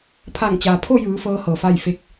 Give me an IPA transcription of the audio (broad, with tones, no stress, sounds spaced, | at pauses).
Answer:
pʰ a˧˩ ŋ t͡ɕ aː˩ pʰ o˥˨ j ɯː˩˧ f ɤː˧˥ h ɤː˩ f a˥˨ j f e˧ k̚